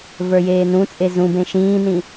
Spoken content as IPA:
v ə˞ j eː n ũ t͡sʼ e z ũ b ẽ ʃ ĩː n ĩ

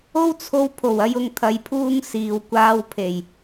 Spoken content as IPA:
o˥ w t͡sʰ o˧ w pʰ o˨˩ w ɐ˨˧ j ʊ˨ ŋ t̪ʰ ɐ˧ j pʰ uː˥ ŋ s iː˨ w kʷ aː˧ w pʰ e˨˩ j

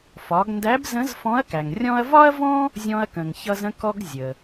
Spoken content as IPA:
f ɒ˩˧ ɡ n d æ˧˥ b z ə̃˧˥ z f ɔ̃˧˥ ɐ̯ k æ˩ ŋ rʲ ɔ̃˥ ɐ̯ v ɒ˥ ɐ̯ v ɔ̃˥ | zʲ ɔ̃˧ ɐ̯ k ə̃˩ ŋ ç ʌ˧ z ə̃˧ k ɔ˧ ɡ zʲ ə˩

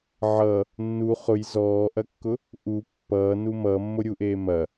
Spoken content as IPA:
ʕ ʌ | nː u χ ʊ j z ɔː ʔ ɐ kː ʊ | ʔ u pː ʌː n u m ʌː mː o ɾʲ u ʔ eː m ɐ

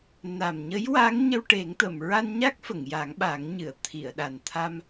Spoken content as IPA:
n a˨˩ m ɲ ə˧˥ j w a˧˥ ŋ ɲ ə˧ w ʈ e˨˩˦ ŋ t̪ ə˨˩˨ m ɹ a˧ n ɲ a˦˥ k̚ f ə˨˩˨ ŋ j a˨˩˦ ŋ ɓ a˨˩˦ ŋ ɲ ɨ˨˩˨ ə̯ t̪ʰ i˨˩˨ ə̯ ɗ a˨˩ n t̪ʰ a˧ m

